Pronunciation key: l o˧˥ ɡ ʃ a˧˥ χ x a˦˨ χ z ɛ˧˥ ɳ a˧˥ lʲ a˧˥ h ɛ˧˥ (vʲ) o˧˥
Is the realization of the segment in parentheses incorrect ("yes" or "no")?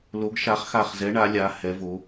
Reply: yes